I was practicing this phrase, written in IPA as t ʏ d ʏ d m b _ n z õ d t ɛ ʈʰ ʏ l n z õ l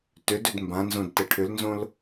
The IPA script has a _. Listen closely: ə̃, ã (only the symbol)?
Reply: ã